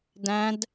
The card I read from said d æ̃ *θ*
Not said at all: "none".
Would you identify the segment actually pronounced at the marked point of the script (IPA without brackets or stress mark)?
d